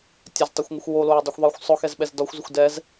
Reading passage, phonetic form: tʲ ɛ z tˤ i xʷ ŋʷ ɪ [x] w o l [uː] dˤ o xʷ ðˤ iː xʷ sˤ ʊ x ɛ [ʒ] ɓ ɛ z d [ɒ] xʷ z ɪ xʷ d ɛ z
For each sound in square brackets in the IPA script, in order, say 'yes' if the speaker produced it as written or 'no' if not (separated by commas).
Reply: no, no, no, yes